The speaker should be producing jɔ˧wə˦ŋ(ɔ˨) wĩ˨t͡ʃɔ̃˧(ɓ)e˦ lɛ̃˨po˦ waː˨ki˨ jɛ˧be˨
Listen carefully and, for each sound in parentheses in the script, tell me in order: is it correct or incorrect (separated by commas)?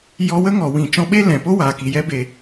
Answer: correct, correct